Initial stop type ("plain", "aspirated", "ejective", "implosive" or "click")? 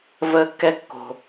plain